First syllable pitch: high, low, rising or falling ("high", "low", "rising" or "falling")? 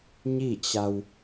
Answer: falling